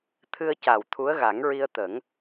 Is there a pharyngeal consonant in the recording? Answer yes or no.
no